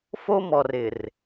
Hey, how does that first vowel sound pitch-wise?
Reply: high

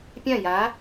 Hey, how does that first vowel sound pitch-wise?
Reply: falling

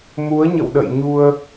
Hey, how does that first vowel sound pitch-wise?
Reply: rising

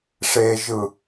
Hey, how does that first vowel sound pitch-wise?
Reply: low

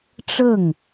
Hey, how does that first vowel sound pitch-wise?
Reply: falling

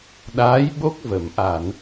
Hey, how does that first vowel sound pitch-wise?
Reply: rising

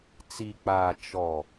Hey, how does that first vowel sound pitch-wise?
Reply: low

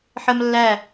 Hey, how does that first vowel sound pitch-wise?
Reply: high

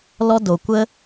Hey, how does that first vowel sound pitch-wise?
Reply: high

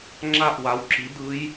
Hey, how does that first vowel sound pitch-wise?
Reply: falling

